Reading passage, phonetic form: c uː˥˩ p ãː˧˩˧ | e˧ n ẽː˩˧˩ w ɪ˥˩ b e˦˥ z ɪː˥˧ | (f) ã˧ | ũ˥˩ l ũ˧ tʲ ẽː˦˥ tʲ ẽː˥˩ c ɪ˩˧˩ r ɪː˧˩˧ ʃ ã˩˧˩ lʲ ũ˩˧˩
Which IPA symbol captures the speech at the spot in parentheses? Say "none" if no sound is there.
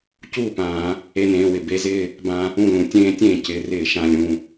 b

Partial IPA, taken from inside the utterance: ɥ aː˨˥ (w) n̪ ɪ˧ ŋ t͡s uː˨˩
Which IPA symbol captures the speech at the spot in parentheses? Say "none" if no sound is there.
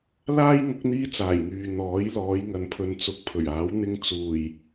w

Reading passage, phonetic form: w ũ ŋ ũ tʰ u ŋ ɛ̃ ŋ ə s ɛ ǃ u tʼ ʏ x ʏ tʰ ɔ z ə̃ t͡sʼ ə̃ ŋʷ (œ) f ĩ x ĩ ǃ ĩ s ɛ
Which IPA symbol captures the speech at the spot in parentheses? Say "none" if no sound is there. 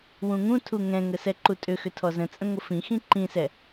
ə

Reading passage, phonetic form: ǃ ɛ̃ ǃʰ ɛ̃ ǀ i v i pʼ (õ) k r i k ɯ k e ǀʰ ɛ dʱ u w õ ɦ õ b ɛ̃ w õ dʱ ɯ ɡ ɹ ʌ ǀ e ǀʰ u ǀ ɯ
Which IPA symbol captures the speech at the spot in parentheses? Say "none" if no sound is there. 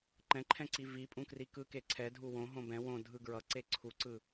ũ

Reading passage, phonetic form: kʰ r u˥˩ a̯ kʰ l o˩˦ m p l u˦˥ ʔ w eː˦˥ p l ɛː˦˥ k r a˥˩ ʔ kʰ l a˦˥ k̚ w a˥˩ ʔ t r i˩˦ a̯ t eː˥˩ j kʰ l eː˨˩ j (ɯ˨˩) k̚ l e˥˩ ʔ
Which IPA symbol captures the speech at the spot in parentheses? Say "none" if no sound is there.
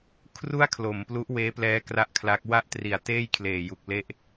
u˨˩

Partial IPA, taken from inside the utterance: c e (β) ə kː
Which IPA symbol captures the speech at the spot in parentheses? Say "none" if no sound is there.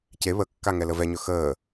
β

